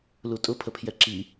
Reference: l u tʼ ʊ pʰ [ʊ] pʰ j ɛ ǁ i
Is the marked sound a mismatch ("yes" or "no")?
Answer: yes